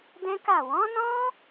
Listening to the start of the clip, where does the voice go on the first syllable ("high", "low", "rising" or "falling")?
high